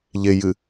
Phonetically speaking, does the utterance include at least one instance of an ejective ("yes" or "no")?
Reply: no